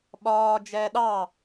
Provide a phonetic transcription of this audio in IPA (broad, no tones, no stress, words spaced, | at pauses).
ɓɒː d͡ʒɛːɗɑ